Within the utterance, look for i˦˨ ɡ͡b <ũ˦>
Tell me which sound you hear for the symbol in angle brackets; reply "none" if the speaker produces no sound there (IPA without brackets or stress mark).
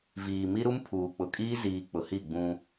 ũ˦